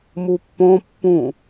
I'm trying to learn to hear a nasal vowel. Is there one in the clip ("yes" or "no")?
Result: yes